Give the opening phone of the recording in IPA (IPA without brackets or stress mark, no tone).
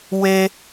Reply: w